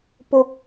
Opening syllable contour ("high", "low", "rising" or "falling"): low